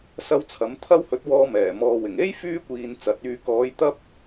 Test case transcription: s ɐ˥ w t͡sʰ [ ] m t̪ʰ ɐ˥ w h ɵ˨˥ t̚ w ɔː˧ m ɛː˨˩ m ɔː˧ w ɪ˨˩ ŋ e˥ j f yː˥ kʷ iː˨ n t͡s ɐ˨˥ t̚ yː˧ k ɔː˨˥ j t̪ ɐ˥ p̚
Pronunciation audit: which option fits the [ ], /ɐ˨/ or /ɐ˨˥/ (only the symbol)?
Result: ɐ˨˥